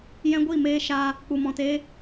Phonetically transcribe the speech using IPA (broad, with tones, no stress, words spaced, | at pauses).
jɛ̃˦ɡʷi˦˨ meː˦ ʃaː˧ | k͡pu˨mɔ̃˨teː˦